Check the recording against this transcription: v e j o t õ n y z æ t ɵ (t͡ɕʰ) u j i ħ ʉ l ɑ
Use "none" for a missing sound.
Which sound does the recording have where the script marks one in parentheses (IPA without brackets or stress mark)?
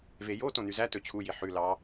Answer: t͡ɕʰ